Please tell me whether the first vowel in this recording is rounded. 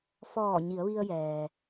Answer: yes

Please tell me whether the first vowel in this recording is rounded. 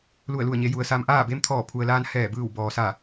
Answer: yes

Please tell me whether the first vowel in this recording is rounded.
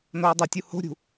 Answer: yes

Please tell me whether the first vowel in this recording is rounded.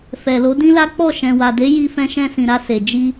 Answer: no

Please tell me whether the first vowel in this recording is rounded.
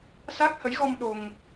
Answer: no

